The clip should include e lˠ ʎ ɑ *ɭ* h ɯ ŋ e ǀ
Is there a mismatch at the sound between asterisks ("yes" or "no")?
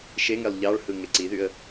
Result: no